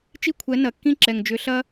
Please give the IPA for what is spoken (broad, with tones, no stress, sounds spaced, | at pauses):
t͡ʃ i˦ kʷʰ ɛ˨˦ n ɐ˨ kː ĩ˦ ǁ ɛ˨ ŋ d͡ʒ ʏ˨˦ ɬ ɐ˦